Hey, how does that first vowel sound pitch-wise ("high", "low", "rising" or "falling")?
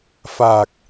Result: low